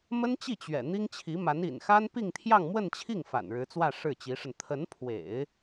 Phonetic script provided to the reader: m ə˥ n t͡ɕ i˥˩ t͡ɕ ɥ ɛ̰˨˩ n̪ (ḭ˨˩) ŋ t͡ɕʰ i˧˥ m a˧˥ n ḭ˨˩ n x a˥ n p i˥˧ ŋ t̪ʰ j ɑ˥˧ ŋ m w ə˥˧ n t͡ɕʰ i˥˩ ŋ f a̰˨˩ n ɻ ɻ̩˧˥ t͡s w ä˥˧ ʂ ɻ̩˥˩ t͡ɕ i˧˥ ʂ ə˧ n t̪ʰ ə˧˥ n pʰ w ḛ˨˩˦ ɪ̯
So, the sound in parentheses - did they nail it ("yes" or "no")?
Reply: no